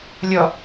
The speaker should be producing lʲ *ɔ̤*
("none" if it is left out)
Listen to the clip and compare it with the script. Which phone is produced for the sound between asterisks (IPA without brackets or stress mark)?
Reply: ɔ